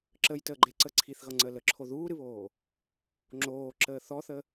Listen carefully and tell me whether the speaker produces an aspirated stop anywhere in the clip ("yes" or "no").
yes